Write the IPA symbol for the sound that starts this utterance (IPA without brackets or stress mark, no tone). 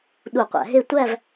ɗ